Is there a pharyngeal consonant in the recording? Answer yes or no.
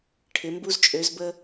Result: no